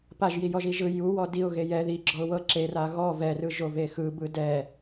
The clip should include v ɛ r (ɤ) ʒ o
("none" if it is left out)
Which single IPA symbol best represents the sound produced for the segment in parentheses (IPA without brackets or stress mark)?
ɯ